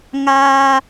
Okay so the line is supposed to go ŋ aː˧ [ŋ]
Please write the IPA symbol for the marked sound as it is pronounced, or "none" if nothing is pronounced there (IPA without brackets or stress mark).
none